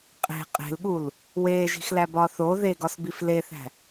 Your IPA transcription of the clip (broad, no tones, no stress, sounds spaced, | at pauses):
qʼ e̤ qʼ e̤ l ɠ u l | w eː ʒ i̤ x l æ b ɒː θ o ð e ɡ ɒ s b i f l e θ æ̤